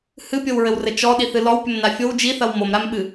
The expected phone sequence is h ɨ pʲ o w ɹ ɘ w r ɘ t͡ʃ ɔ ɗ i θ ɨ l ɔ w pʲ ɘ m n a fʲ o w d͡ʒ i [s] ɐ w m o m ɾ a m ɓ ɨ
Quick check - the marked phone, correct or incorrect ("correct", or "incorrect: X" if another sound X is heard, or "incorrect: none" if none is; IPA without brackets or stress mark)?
incorrect: θ